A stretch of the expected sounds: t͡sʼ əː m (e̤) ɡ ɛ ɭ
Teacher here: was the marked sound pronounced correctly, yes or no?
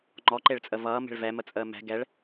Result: no